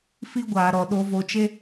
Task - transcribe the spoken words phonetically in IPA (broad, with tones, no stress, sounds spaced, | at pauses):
f i˦ ɡʷ aː˨ ɾ ɔ˨ ɗ o˧ v o˨ t͡ʃ e˧